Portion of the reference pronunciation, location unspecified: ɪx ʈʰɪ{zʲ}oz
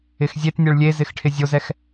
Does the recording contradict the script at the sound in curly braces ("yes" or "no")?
no